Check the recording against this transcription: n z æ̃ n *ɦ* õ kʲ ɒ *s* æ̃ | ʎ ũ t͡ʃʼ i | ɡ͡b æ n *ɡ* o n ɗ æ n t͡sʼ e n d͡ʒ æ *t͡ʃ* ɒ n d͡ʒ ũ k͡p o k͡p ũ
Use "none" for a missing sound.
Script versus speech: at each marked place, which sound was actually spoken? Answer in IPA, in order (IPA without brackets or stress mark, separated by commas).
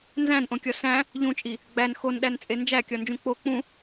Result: ʔ, s, x, kʲ